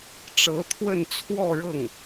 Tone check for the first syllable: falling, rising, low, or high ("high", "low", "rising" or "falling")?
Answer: rising